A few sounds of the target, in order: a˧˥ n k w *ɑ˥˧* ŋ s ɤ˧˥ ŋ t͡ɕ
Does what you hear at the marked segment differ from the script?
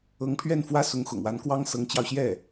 yes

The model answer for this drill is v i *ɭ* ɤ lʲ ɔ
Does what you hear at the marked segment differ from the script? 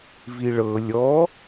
no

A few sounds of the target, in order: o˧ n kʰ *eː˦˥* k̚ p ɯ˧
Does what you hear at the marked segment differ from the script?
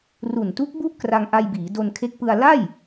yes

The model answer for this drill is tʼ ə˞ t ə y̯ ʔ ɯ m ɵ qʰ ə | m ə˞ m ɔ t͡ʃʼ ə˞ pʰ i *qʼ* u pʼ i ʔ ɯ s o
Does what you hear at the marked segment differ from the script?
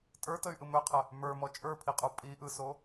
no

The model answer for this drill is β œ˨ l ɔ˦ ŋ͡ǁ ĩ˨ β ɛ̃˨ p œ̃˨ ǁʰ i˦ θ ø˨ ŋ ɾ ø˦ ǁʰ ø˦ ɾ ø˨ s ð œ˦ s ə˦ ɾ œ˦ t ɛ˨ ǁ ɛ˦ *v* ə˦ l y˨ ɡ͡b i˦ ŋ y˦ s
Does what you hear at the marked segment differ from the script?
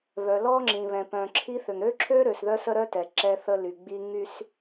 yes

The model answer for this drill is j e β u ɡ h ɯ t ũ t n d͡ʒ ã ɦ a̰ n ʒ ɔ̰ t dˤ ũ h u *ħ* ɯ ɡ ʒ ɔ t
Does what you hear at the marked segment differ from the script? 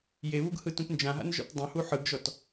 no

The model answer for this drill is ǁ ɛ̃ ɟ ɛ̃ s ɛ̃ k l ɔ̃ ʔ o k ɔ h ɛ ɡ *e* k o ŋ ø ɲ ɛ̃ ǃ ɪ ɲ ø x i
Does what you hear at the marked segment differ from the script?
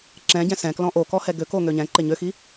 yes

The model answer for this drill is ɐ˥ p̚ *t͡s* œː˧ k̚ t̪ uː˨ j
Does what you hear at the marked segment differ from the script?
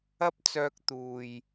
no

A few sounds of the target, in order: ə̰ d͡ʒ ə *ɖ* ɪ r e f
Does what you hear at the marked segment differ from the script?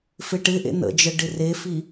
no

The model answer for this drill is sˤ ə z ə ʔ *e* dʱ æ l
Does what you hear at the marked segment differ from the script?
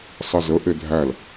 no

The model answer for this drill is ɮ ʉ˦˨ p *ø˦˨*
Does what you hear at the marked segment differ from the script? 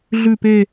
yes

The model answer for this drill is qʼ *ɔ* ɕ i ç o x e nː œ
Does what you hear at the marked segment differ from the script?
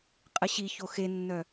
yes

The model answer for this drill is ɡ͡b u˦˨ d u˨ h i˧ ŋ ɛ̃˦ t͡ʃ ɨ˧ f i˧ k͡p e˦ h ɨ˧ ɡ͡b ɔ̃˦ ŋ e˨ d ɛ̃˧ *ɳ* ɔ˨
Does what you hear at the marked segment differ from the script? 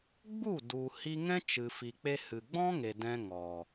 yes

